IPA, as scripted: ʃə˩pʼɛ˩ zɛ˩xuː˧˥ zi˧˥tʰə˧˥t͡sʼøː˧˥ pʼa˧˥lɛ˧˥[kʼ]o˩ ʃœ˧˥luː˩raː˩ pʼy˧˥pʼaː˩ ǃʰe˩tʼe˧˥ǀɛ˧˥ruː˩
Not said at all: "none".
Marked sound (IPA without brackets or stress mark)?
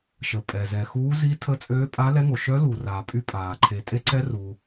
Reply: ŋ